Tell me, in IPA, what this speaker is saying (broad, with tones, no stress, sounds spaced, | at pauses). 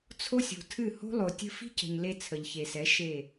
t͡sʰ o˦ sʲ o̤˨ tʰ ɨ˦˨ h o̤˦ lˠ o˨ tʲ ə̤˦ f i̤˦ c ə̤˨ ɲ l e˧ t͡sʰ ə˨ ʎ ç e˨ s ɛ˨˦ ʃ e˦˨